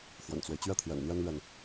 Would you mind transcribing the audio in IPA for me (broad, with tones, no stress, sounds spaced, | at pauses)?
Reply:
x w ə̰˨˩ n t͡s w e˦ ɪ̯ t͡ɕ ɥ ɛ˥˩ t̪ʰ j ɛ̰˨˩ n n̪ j ɛ˥ n l ɥ ɛ˨ n